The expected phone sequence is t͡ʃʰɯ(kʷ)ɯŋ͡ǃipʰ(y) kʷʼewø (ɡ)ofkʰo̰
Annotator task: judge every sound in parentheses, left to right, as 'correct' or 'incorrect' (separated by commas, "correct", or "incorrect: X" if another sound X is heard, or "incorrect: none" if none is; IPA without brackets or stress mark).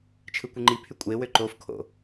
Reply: correct, correct, incorrect: ǃ